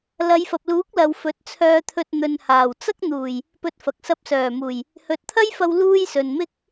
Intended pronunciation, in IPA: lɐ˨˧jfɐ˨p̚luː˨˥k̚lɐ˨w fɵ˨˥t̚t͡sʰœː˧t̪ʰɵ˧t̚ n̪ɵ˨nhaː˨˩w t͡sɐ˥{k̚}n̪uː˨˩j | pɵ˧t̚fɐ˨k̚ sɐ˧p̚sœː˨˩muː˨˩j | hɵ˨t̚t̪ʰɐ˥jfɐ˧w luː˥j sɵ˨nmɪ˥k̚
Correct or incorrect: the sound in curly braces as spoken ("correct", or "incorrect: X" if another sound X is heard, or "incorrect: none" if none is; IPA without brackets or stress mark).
correct